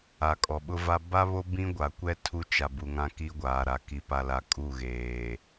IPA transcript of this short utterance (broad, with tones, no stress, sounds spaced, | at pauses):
a˨ kʼ ɔ˨ ɓ ʊ˦ v a˦ b a˦ β o˦ b ĩ˦ ɡʷ a˨ kʷ ɛ˦ tʰ u˦ t͡ʃ a˨ b u˨ ŋ ã˦ k i˦ ɡʷ aː˨ ɾ a˨ k i˨ p a˨ l a˨ kʼ u˦˨ ɣ eː˨